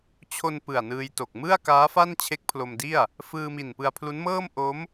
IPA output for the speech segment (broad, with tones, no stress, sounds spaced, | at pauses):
t͡ɕʰ o˧ n p ɯ˨˩ a̯ n ɯː˧ j t o˨˩ k̚ m ɯ˥˩ a̯ k aː˦˥ f a˥˩ n t͡ɕʰ e˦˥ k̚ pʰ l o˧ m d i˥˩ a̯ | f ɯː˧ m i˨˩ n p ɯ˧ a̯ pʰ l u˦˥ n m ɤː˥˩ m ʔ o˦˥ m